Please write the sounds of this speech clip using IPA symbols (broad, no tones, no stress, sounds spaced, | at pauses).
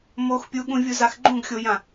m o x pʲ u ɠ ũ vʲ u z a x ɡ͡ǃ ũ ɡ xʲ o j ã